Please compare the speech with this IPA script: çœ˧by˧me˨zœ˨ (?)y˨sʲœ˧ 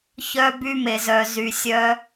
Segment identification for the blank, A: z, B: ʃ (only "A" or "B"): A